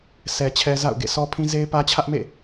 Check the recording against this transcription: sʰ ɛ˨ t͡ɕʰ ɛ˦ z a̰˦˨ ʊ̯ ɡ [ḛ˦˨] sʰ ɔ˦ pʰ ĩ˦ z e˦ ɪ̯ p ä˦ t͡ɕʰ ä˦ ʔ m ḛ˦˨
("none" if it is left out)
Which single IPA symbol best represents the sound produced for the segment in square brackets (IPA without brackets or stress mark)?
ḛ˦˨